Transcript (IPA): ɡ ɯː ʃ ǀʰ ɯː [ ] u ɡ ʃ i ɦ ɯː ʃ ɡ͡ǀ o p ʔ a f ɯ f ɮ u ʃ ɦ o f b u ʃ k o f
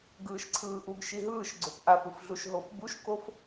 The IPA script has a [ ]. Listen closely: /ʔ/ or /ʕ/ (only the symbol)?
ʔ